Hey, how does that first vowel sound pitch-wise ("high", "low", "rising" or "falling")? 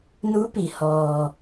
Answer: rising